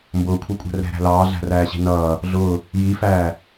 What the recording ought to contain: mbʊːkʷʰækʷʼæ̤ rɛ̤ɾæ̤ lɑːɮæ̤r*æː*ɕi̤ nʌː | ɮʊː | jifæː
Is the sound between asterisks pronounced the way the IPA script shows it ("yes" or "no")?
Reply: yes